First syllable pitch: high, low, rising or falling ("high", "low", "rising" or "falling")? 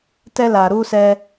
high